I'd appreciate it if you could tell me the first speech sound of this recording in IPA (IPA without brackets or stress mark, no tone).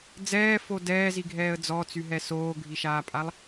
d͡z